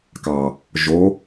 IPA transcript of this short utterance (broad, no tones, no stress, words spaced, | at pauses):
kɑ | ʒo